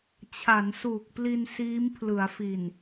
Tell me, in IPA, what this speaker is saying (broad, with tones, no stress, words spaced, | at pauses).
t͡ɕʰa˩˦nsuː˨˩k̚pli˧n siː˦˥mpʰlɯ˩˦a̯fi˨˩n